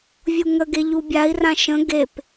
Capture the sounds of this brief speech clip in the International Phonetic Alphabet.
vʲ u ŋ ə ɡ e ʎ u bʲ a i̯ r ã ʃ ə̃ ɡ e p

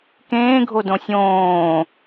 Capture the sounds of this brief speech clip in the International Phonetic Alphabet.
k ẽː ɡʱ o d õ sʲ õː

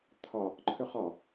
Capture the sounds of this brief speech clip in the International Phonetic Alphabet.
t̪ʰ ɒ | ǃʰ ʏ χ ɒ

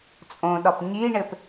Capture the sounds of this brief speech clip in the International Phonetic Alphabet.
t͡sʼ õ ɗ ɒ p ɲ i ɳ ɘ p

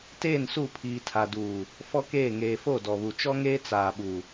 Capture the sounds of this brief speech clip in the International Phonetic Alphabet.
t eː˦˨ n s u˦˨ pʰ iː˨ tʰ a˨ d uː˨ | f ɔ˦ k eː˦˨ ŋ eː˨ f o˦˨ d ɔ˨ β u˨ t͡ʃ ɔ˦ ŋ eː˦ t͡s aː˨ ɓ u˨

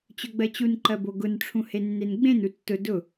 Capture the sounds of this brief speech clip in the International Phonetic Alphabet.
t͡ɕ ɵ ɡ͡b ɜ t͡ɕ u n ǃ ɜ b o ɡ ʊ n ʈ͡ʂʰ ũ h e nː e n ɡ͡b ẽ n u tː ʊ d ʊ

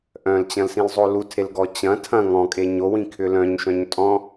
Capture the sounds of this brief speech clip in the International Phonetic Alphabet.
ʔ œ̃ l t͡ɕ ɐ̃ l s ĩ l zˤ o l u tʰ e l ɡ ɔ t͡ɕ ɐ̃ tʰ ɐ̃ ŋ ɔ̃ kʼ e ɲ o w ĩ kʰ ʏ l œ̃ ɲ ʃ œ̃ ɲ tʼ ɔ̃

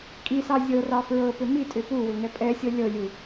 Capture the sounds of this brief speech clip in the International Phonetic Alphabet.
kʼ i s ɑ zʲ ɤ r ɑ f ɹ ɤ p ʏ m i tʼ ʏ p u w ʏ ŋ ɛ pʼ ɛ sʲ ɤ lʲ ɤ lʲ u

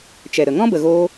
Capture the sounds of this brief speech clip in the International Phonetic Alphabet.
t͡ʃ ɛ˨ ɾ ə˨ ŋ ɔ̃˦ b ə˨ ɣ oː˧

